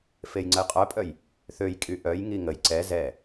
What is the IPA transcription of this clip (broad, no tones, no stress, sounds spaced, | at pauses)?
f e j ŋ͡ǀ ə j qʼ œ pʼ œ j | θ ø j kʼ y ʔ œ j ŋ i ŋ ə j ǀ ɛ z ɛ